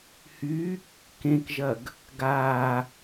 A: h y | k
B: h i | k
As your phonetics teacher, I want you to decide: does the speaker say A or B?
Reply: A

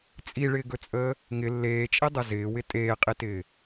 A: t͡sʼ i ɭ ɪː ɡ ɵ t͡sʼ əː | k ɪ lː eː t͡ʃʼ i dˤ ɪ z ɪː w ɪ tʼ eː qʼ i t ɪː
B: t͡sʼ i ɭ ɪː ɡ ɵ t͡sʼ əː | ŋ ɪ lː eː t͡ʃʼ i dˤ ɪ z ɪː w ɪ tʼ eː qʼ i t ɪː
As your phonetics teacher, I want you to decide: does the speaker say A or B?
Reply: B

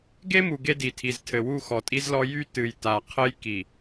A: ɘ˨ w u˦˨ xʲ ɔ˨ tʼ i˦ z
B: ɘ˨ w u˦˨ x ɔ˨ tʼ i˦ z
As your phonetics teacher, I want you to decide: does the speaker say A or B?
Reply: B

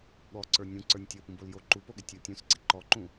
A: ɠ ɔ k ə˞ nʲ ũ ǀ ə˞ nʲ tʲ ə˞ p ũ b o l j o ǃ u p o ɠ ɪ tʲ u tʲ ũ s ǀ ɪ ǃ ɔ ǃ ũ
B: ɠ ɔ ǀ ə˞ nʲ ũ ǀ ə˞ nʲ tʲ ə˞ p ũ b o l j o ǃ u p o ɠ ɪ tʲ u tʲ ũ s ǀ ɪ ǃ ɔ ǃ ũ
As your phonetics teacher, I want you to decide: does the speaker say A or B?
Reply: B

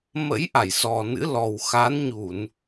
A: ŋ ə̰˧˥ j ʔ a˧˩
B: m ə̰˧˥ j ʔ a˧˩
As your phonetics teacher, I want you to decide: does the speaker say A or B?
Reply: B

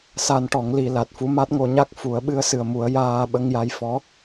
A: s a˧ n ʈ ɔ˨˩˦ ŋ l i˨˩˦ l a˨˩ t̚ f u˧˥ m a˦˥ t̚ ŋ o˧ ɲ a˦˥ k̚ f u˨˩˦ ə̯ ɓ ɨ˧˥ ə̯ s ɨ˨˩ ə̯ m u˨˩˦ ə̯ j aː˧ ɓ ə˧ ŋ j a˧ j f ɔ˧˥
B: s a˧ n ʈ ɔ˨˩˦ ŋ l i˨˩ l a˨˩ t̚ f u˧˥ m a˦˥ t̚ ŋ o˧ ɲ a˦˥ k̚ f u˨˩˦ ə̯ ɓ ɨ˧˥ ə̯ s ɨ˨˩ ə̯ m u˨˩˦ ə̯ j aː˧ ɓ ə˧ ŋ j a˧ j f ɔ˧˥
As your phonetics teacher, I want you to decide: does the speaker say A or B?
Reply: A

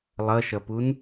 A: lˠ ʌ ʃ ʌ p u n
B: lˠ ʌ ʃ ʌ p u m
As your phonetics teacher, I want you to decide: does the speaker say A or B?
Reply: A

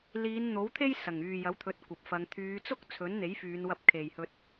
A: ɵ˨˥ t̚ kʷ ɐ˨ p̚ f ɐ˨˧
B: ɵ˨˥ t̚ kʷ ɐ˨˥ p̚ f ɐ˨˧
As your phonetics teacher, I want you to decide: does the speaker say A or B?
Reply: A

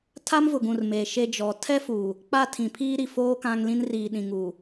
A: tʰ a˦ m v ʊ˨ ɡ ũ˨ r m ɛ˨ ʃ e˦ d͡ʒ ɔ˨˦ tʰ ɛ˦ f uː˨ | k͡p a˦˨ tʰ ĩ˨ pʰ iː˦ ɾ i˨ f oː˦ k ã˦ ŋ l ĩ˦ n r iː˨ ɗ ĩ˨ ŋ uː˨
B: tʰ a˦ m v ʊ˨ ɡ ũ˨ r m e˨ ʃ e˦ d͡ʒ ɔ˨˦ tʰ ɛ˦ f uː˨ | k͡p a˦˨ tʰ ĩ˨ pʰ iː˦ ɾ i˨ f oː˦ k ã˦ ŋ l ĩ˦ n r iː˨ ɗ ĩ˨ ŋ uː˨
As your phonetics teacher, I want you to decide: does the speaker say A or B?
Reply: B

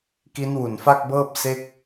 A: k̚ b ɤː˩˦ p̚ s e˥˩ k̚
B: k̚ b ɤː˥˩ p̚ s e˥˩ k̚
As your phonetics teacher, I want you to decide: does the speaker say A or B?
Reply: B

